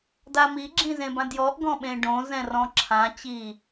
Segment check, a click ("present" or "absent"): present